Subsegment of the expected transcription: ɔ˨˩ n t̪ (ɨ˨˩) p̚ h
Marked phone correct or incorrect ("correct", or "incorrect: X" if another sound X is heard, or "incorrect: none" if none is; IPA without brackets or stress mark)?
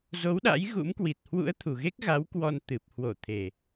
correct